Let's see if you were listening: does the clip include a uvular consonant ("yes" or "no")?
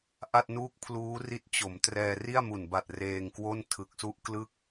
no